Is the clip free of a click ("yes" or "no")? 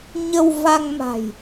yes